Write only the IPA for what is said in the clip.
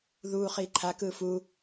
ð uː χ iː ǃʰ a k ɯː f uː

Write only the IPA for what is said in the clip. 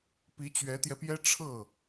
p i˧˥ t͡ɕ ɥ ɛ˧˥ t̪ j ɛ˧ p j ɛ˥ ʈ͡ʂʰ ɤ˥˩

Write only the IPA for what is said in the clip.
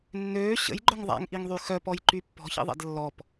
nː øː ɕ ə̰ j ɡ͡ǃ œ ŋ ðˤ a̰ ŋ ʔ i ŋ ðˤ y x œ p ɔ j ǃ y pː ɔ̤ ç ḭ ðˤ ɛ̰ d lː ɔ p

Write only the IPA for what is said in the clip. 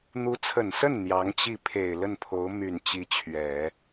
n̪ u˧˥ t͡sʰ ə˨˩ n s ə˥˩ n n̪ j ɑ˧˥ ŋ t͡ɕ i˥˩ pʰ e˨˩ ɪ̯ l ə˥˩ n pʰ o˧˥ ʊ̯ m y˨˩ n t͡ɕ i˧˥ t͡ɕʰ ɥ ɛ˨˩˦

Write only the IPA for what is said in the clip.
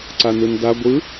ǀ a n ɯ n d a ɡʷ ɯ

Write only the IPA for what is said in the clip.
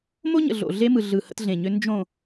m o˦ ɲ ə̰˨ ɮ o̰˨ ɮ e˦ m ɯ˨ ɮ ɯ˨ h ə̰˦ t ɮ ẽ˨ ɲ ʏ˦ n d͡ʒ õ˨

